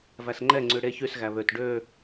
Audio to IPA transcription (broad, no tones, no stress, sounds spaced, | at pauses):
v æ s ŋ͡ǃ ɛ ŋ͡ǀ ʉ ɽ e ç y s ɣ æ β ø t ɖ ø